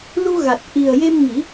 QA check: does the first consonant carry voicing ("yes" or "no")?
yes